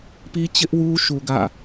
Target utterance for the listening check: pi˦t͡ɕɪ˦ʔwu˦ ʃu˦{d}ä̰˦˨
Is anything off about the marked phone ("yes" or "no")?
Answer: yes